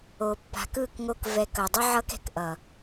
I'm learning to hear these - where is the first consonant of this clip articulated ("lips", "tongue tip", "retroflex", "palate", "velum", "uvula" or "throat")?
lips